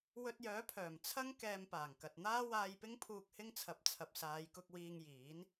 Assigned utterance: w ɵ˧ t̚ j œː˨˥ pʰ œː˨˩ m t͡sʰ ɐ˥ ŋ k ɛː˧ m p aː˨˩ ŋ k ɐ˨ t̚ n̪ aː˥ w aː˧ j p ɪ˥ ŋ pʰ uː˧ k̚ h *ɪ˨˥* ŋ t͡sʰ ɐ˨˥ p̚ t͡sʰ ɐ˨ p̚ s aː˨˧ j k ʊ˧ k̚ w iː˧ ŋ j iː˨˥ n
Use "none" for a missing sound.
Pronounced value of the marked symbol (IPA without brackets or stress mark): ɪ˥